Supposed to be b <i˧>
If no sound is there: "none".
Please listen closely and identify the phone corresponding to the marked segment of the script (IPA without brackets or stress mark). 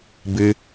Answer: ɨ˧